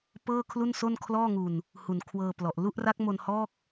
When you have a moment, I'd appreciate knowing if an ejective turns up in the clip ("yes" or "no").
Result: no